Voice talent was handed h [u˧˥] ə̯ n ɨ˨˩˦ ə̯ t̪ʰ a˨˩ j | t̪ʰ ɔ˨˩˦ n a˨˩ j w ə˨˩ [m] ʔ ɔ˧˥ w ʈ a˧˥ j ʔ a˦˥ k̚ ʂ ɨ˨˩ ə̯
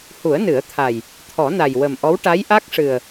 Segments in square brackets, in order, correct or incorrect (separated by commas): incorrect, correct